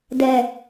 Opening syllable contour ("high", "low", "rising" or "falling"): low